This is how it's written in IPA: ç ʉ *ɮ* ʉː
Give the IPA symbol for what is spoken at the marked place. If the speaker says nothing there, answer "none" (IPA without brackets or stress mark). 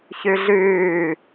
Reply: ɮ